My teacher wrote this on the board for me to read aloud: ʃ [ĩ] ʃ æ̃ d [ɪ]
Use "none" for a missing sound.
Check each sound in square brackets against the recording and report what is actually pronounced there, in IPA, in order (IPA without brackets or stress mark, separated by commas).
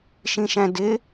ĩ, ɪ